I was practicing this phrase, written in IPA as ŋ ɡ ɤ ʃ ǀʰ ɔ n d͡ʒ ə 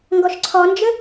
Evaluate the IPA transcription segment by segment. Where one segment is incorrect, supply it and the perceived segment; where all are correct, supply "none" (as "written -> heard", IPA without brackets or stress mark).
ɤ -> ɔ